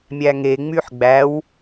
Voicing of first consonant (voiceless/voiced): voiced